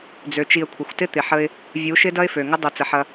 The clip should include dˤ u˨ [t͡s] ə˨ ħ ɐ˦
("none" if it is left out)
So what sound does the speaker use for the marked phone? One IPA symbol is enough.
t͡s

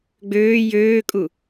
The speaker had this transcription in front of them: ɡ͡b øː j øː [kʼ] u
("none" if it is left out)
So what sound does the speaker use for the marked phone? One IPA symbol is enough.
kʼ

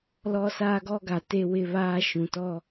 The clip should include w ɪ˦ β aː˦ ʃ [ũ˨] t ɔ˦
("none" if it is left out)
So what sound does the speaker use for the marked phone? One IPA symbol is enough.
ũ˨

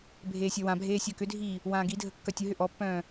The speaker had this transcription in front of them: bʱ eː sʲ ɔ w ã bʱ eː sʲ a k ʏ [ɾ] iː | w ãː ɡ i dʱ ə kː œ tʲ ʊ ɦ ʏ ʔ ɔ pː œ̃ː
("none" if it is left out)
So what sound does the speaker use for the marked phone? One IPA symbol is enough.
dʱ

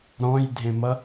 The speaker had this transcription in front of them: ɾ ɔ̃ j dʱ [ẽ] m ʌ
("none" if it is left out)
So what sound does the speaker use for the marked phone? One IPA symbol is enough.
ẽ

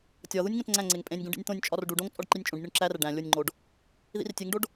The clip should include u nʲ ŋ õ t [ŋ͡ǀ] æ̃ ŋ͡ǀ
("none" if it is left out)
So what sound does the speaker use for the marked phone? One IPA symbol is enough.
ŋ͡ǀ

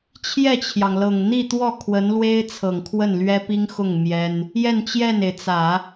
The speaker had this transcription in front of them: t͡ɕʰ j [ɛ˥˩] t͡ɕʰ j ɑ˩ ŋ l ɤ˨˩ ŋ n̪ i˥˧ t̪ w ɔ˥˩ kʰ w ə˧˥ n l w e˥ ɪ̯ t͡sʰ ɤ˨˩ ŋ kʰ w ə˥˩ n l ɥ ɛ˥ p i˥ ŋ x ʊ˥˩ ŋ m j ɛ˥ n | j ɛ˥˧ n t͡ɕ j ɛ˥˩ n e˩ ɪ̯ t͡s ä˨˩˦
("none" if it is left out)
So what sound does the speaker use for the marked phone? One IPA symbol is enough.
ɛ˥˩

